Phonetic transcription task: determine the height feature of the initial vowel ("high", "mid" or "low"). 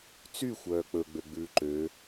high